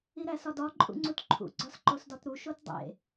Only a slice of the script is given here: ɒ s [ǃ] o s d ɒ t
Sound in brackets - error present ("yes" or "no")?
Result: no